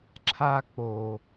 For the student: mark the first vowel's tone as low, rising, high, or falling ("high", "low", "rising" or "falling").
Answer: high